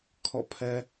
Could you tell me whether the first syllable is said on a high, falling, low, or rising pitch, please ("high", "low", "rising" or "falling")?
falling